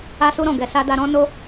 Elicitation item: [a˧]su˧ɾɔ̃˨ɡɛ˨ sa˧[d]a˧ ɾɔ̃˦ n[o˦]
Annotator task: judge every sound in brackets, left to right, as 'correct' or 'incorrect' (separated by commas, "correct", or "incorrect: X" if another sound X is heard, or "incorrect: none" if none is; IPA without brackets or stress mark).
correct, correct, correct